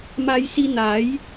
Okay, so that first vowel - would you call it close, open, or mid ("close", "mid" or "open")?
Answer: open